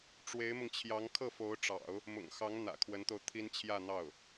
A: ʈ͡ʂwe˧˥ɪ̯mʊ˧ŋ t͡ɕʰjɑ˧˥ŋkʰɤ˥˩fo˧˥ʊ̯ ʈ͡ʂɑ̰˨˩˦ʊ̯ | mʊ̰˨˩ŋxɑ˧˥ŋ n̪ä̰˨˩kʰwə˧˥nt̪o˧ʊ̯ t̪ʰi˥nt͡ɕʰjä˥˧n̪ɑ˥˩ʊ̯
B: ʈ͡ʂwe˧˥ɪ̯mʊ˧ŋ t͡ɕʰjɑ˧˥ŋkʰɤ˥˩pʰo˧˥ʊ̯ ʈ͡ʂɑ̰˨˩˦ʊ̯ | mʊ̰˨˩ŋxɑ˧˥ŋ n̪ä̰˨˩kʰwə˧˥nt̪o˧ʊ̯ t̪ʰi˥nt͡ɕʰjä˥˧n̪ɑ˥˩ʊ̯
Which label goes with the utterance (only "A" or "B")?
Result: A